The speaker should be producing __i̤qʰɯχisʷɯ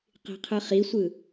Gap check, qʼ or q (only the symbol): q